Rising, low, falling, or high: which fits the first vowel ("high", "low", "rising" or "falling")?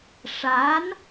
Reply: rising